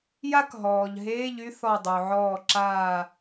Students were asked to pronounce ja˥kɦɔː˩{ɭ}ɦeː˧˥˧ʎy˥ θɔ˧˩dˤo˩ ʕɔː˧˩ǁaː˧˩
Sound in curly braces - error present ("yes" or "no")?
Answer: yes